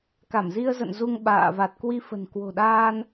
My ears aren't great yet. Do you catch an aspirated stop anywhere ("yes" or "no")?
no